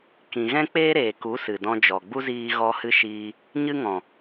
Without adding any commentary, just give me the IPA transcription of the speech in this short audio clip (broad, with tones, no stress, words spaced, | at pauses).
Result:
kĩ˧ ɣɛ̃˦k͡peː˦ɾeː˨ku˨˦ sɨ˨dɔ̃˧d͡ʒɔ˨ɡ͡bu˦ ziː˧ɣɔ˧hɨ˧ ʃiː˧ | ɲɨ˦ŋɔ̃˨